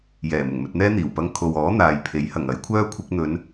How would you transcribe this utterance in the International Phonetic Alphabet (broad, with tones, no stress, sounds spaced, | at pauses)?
j ɛː˨˩ m ʊ˨˩ ŋ m ɵ˧ t̚ n̪ ɛː˥ n̪ iː˨˩ w p ɐ˧ ŋ kʰ o˨ w ɔː˨˥ n̪ aː˨ j pʰ e˨˥ j h ɐ˨˩ ŋ ɐ˨˥ j kʷʰ œː˥ kʷʰ ɪ˧ k̚ n̪ ɵ˨˧ n